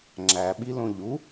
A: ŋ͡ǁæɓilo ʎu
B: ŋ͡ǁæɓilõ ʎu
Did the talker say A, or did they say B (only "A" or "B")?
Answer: B